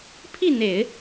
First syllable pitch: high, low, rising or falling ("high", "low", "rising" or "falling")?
falling